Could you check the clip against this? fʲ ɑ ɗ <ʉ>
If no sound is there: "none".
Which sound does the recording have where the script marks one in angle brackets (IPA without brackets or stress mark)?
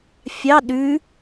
ʉ